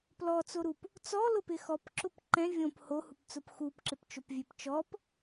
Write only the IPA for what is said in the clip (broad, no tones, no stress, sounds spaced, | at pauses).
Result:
p l ɔ t͡s o ɾ u p | t͡s ɔ l ʊ p ɪ x ɔ p ǁ ʊ p ǃ ɛ̃ vʲ õ p h o h u p t͡s ʊ p x u p ǁ ɪ p t͡ʃ o p vʲ e p t͡ʃ ɔ p